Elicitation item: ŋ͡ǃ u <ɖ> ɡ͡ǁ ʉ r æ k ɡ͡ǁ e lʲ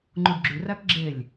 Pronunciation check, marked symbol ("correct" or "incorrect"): correct